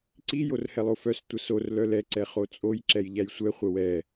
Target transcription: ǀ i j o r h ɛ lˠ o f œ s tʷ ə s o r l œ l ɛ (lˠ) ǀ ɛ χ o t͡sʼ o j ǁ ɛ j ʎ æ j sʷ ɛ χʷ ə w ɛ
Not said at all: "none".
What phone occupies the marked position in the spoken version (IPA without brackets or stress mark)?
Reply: none